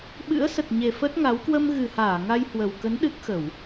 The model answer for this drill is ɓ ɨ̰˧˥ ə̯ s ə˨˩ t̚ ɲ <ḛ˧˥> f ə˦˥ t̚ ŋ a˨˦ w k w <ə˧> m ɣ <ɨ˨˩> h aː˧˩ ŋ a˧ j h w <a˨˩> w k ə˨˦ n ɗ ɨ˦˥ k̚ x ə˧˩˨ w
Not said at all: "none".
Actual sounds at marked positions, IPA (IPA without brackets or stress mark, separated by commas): e˨˩, ə˧, ɨ˨˩, ə˨˩